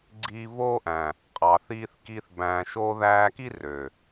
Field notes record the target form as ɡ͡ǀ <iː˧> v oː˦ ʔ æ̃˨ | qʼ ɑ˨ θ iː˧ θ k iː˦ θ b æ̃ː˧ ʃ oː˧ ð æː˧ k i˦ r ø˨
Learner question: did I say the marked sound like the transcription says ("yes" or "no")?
yes